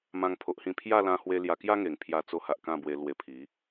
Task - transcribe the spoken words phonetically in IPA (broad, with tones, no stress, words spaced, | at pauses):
mã˦ŋpʰo˦ʔhĩ˥˧ pʰja˥˧lã˧hwe˧ lja˧kja˦ŋe˨˩ŋpʰja˧ t͡so˧ha˨ʔ kã˥˧bwe˧lwe˧ pʰi˨˦